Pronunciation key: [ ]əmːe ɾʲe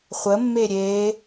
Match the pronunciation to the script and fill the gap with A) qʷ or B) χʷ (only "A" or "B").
B